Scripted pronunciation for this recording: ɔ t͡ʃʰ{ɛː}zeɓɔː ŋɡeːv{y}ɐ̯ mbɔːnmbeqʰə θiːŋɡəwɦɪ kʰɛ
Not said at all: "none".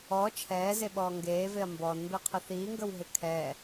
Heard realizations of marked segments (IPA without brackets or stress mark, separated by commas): ɛː, e